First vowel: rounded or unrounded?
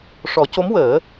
rounded